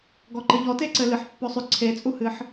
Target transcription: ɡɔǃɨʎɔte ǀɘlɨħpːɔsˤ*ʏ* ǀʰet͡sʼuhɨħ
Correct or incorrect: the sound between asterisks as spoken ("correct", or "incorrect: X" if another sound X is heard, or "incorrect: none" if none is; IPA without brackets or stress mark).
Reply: correct